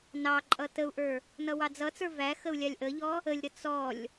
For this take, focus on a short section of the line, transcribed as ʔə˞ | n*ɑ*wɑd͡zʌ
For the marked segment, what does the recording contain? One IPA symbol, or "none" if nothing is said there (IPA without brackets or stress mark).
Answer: ʌ